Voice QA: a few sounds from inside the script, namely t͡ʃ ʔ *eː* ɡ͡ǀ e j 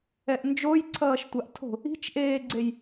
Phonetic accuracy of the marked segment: correct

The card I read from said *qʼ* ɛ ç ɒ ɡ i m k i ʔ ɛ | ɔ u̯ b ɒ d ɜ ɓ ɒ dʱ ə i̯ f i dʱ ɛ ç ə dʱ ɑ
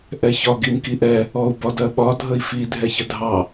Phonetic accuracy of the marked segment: incorrect: ʔ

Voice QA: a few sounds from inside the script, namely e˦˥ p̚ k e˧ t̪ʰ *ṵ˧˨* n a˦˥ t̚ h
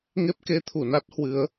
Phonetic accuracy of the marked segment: incorrect: u˧˩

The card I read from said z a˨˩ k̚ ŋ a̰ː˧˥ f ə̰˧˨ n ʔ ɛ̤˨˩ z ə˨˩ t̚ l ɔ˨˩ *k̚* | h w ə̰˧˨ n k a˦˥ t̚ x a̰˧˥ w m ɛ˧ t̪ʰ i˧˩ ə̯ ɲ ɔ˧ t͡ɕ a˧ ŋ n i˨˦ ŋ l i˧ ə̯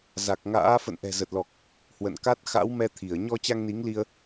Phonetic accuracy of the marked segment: correct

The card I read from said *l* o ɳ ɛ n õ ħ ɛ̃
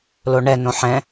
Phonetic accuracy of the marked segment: correct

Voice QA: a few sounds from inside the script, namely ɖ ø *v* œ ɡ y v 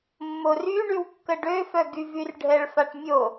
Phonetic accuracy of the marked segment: incorrect: f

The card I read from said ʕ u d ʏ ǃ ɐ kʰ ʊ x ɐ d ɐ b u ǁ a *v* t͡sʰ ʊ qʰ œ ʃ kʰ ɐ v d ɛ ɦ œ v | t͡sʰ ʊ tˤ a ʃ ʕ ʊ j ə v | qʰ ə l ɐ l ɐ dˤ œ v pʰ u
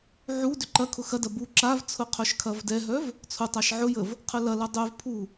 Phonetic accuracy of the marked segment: correct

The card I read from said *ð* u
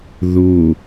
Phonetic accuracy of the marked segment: correct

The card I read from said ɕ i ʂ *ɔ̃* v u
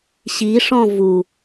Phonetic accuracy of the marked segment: correct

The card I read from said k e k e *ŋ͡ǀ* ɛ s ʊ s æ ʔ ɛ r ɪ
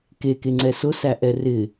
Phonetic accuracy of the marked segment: correct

